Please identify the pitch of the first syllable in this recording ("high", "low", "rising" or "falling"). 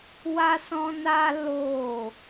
high